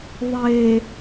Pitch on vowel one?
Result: low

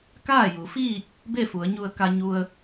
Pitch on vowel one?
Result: falling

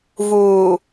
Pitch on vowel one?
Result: low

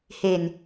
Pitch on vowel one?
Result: low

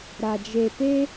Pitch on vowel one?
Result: low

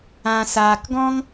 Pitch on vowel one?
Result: low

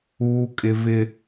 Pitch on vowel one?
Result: high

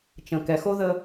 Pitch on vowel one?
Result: low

